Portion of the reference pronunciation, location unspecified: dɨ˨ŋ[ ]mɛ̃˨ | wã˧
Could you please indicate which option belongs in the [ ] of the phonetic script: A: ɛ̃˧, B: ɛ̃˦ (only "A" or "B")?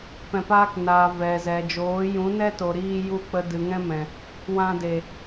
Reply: B